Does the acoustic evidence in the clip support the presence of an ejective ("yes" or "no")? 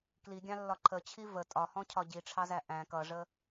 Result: yes